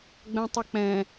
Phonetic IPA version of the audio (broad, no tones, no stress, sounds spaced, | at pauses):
ɡ͡b ɛ̃ tˤ ə k͡p ɛ̃